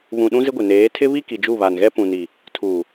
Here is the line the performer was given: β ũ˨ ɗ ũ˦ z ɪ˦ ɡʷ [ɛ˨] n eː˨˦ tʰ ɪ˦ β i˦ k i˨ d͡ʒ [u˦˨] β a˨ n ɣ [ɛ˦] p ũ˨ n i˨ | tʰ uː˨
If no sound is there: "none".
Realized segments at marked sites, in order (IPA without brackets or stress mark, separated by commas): ɪ˨, u˦˨, ɛ˦